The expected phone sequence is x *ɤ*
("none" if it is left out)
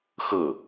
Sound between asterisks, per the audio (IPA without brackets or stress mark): ɤ